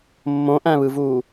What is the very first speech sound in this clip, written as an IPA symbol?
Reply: mː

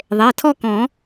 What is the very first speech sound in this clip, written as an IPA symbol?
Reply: ðˤ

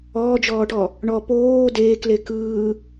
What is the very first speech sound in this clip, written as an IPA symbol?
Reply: ɔː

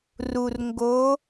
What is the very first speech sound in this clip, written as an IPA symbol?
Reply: r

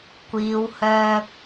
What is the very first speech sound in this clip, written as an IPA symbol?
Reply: kʷ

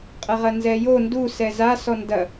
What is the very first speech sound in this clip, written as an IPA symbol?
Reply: qʼ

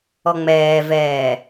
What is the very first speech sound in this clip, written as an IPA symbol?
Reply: ɔ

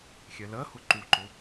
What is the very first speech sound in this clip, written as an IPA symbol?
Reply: xʲ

